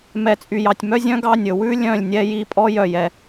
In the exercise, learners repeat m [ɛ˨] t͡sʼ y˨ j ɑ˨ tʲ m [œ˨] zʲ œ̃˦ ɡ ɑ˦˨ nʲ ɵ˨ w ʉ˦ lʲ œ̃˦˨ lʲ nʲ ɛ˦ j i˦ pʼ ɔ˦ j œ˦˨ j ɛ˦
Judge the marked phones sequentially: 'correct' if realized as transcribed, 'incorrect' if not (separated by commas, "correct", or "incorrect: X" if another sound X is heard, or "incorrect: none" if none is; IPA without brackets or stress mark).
correct, incorrect: œ˦